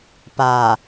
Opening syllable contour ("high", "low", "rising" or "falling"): low